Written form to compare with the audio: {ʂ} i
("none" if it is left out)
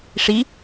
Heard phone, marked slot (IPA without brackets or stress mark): ʂ